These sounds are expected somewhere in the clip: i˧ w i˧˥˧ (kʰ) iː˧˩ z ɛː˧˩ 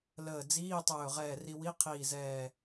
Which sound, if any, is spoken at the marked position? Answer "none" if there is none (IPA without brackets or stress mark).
qʰ